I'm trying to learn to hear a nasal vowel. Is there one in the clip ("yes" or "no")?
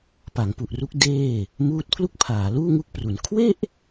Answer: no